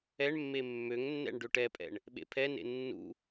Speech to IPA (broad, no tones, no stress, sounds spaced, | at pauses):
ɛ ɳ mː e mː ø ŋ nː ɛ̰ ɳ ɖ ø ʈ ɛ pʼ ɛ̰ ɳ | ɓ ḛ pʰ ɛ n ḛ nː ṵ